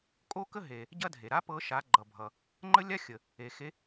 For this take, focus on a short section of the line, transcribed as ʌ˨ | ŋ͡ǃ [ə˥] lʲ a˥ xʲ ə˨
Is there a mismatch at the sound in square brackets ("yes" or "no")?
no